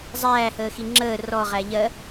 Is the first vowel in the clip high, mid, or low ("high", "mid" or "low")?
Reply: low